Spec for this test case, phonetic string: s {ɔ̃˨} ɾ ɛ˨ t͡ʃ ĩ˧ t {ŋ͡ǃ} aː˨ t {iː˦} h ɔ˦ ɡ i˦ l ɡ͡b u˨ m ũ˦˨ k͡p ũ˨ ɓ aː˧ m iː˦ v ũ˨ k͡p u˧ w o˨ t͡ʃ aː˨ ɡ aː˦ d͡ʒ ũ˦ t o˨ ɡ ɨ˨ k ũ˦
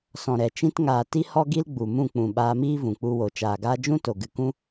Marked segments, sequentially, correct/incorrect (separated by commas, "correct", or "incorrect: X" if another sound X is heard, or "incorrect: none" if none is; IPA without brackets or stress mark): correct, incorrect: ŋ, incorrect: i˦